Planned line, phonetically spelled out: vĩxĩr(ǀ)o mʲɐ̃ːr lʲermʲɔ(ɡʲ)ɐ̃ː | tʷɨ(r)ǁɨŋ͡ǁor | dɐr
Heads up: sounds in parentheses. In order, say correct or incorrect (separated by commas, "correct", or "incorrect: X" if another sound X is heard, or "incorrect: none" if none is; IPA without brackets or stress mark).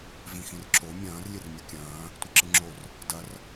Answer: incorrect: ǁ, incorrect: kʲ, incorrect: none